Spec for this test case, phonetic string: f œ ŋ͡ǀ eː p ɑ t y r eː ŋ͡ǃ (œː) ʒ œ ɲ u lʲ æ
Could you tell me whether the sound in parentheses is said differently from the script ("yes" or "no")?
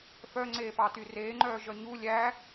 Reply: no